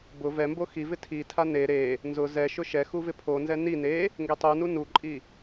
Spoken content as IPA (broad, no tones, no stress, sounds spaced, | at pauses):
b ʊ v ɛ m b o x i v ɪ tʰ i tʰ a n e ɾ e | n z ʊ z ɛ ʃ ʊ ʃ ɛ x u v ɪ pʰ o n z ɛ n i n e | ŋ ɡ e tˤ u n u n u ǃʼ i